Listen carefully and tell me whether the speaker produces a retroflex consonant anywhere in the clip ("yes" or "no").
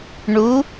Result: yes